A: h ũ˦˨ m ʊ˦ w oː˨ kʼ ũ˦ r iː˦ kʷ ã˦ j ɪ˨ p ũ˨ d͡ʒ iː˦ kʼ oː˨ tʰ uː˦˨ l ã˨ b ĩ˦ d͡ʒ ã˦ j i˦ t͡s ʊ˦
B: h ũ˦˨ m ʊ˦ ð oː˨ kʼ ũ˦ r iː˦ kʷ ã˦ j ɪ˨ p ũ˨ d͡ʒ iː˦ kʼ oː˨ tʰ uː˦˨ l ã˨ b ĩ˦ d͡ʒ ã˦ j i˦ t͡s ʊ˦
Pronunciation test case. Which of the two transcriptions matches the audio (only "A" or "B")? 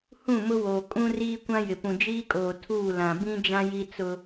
A